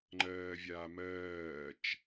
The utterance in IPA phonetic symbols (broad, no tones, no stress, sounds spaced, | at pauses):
ŋ͡ǃ ɜː vʲ aː m ɜː t͡ʃ